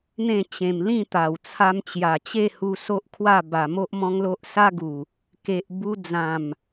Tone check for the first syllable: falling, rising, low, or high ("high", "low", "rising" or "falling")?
falling